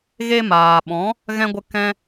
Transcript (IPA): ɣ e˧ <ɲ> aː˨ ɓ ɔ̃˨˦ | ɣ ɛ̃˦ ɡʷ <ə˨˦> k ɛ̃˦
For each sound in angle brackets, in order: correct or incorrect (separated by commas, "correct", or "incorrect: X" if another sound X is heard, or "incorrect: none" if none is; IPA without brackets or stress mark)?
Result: incorrect: m, incorrect: ə˦